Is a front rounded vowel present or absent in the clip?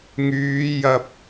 present